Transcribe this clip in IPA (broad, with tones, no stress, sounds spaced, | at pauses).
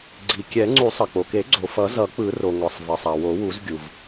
ɡ͡ǀ i˩ kʲ ɛ˨˩˦ ŋ͡ǀ u˨˩˦ sˤ ʌ˩ k͡p o˩ k e˨˩˦ ɡ͡ǀ o˩ f ʌ˨˩˦ z ʌ˨˩˦ k͡p ɯ˨˩˦ r o˩ ŋʷ e˩ sˤ v ʌ˩ sˤ a˩ w o˨˩˦ w u˨˩˦ z ɡʲ u˩ v